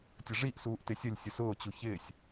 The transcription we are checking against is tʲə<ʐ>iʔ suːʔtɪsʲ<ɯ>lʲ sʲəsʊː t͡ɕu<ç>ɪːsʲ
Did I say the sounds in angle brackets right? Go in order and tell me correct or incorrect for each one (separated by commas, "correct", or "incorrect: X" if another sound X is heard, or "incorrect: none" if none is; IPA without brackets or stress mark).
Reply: correct, incorrect: ə, correct